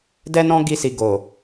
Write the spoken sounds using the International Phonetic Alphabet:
d ɛ˦ n ɔ̃˦ ɡ i˧ s i˨ ɡ o˨

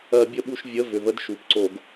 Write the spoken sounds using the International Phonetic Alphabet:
ɜ˧˩˧ bʲ ə˦˨ ɓ u˦˨ ʃ vʲ ə˧˥˧ v ʏ˨˩ v ə˧˥˧ d ʃ u˨˩ p ǀ o˧˩˧ ɡ

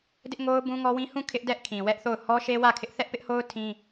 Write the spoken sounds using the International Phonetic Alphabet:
d ɪ˦ ʔ ŋ o˦ ʊ̯ b ũ˦ ŋ ɔ˦ w ĩ˦ h ũ˦˨ kʰ ɪ˦ ʔ d ɛ˦ ʔ kʰ ĩ˨ w ɛ˦ ʔ θ o˦˨ ʊ̯ h ɔ˦ ʃ e˦ w ä˦˨ kʰ ɪ˦ ʔ θ ɛ˦ ʔ p ɪ˦ ʔ h o˦ ʊ̯ tʰ ĩ˦

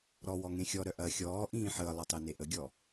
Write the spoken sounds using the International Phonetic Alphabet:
ɾ ɔ w ɔ ŋ ẽ xʲ ɔ ɾ œ ʔ ɐ xʲ ɔː ʔ ĩː ħ əː lˠ ɐ tˤ e n e ʔ ə ɡʲ ɔ

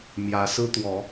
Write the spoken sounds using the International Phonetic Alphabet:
m j ä˨˦ s ɹ̩˦ t̪ w ɔ˨˦

